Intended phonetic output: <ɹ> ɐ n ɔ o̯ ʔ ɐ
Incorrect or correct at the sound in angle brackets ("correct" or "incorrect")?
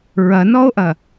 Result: correct